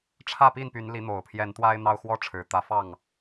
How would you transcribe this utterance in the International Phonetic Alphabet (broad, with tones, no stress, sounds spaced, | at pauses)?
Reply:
ʈ͡ʂʰ ä˥˨ p i˥˨ n p y˨˦ n l i˨˦ n̪ o˨˩ ʊ̯ pʰ j ɛ˨˦ n t̪ w a˦ ɪ̯ n̪ ɑ˦ ʊ̯ x w ɔ˦ ʈ͡ʂʰ ɻ̩˨˩ t̪ ä˨˦ f ɑ˥˨ ŋ